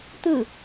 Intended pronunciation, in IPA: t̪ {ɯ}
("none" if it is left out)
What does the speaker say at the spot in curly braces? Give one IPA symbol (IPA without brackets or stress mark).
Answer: ɯ